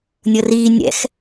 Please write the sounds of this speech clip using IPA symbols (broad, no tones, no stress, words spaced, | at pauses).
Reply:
nʲɤriː nʲɛ̰x